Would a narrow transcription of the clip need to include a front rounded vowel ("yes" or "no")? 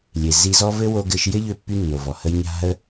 yes